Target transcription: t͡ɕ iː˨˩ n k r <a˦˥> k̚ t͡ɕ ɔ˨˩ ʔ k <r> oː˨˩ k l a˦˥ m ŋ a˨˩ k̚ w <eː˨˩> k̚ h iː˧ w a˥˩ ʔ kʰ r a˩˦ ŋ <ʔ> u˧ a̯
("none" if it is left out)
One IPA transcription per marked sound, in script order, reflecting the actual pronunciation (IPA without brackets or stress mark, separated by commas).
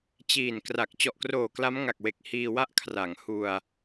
a˨˩, r, e˨˩, h